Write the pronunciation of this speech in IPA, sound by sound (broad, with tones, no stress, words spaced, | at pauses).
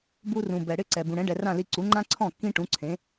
bu˧rũ˩ bɛ˩ɽɪ˥˩ǀɛ˩ bũ˩ɽɛ̃˩˥ ɖɛ˩rã˥˩li˧ ǀu˩˥ŋ͡ǃã˥ǀʰɔ̃˥˩ kːĩ˥ʈũ˩˥ǀʰẽ˩˥